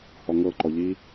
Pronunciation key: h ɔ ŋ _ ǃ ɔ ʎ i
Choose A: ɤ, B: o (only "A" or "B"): A